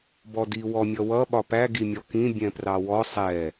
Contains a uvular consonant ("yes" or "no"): no